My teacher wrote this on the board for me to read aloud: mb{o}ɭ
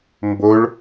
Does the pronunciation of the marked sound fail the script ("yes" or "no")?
no